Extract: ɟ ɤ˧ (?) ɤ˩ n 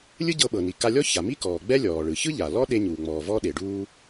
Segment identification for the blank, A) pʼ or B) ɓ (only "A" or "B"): B